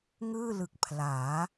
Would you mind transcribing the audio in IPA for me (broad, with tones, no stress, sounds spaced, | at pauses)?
ŋ ɯː˥˩ l ɯ˨˩ k̚ pʰ l aː˩˦